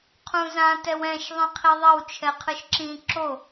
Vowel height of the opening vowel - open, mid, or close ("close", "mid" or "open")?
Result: close